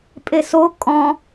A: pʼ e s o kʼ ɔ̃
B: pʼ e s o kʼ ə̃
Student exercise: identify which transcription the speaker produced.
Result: A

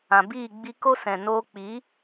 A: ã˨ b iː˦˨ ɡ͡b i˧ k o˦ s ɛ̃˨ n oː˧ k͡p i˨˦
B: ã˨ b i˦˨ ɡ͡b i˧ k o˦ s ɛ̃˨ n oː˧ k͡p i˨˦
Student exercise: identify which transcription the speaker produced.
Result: A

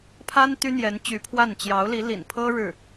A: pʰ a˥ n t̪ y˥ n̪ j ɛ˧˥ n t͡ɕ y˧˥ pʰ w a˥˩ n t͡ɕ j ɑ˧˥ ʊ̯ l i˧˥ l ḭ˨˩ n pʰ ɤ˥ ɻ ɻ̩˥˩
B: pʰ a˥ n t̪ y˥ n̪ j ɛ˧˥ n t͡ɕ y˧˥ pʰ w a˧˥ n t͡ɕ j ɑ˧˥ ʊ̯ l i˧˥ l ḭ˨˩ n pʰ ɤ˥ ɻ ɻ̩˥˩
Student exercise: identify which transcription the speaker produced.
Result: A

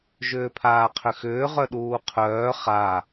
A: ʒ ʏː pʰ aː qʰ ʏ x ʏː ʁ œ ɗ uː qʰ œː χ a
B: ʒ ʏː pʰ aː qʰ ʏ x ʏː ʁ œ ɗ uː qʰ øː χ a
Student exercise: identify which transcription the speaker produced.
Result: A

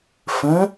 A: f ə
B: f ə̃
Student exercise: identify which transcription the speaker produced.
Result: B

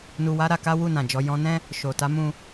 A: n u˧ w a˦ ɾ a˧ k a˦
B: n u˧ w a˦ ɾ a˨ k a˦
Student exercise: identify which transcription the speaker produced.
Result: A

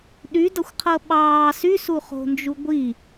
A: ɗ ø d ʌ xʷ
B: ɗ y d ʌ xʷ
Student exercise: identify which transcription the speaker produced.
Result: B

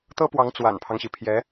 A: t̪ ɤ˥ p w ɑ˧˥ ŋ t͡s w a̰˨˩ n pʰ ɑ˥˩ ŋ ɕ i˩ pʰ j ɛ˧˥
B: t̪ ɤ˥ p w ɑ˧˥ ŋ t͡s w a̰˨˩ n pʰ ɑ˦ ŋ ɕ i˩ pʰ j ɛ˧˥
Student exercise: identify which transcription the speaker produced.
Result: B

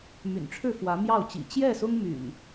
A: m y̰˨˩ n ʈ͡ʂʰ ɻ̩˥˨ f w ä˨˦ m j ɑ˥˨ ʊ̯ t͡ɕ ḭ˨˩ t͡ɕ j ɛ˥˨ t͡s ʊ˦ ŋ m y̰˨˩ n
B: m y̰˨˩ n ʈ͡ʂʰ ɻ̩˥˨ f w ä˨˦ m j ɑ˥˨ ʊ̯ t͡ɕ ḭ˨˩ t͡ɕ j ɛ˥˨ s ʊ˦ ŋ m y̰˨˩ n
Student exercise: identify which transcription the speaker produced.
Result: B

